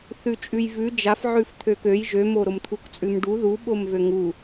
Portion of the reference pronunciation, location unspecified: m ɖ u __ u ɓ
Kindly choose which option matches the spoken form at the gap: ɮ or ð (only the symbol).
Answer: ð